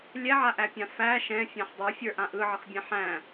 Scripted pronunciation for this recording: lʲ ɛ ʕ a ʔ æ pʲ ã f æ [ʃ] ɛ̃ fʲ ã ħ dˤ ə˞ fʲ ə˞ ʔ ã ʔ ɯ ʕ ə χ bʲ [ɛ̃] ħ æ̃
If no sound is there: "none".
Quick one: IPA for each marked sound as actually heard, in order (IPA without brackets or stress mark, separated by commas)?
ʃ, ɛ̃